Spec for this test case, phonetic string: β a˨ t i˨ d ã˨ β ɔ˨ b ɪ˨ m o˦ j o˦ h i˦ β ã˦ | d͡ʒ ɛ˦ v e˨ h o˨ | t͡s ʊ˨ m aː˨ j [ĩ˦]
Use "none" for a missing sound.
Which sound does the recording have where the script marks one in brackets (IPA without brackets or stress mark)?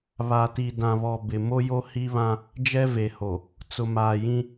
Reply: ĩ˦